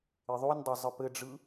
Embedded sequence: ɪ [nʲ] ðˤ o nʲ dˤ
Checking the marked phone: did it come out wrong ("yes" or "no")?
yes